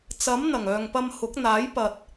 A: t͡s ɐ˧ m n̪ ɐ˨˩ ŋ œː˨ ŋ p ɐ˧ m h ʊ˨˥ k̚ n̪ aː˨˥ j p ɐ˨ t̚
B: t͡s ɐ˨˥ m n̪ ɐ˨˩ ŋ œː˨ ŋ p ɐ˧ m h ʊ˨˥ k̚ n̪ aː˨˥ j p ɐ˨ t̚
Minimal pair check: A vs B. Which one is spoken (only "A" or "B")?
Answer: B